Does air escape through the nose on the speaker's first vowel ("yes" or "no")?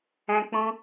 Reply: yes